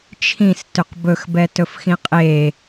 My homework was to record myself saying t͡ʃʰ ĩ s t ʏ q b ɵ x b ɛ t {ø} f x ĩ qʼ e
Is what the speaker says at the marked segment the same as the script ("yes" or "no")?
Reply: no